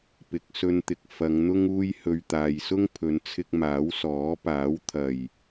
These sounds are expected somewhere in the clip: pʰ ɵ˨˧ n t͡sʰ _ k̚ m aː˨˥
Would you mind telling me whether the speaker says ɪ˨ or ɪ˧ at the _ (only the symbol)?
ɪ˧